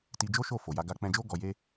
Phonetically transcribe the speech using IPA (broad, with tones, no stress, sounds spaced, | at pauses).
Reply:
t i˧ d͡ʒ o˦ ʃ o˦˨ f o˨ j a˧ ɡ a˧ k͡p ɛ̃˧ d͡ʒ o˦ ɡ ɔ˧ j e˦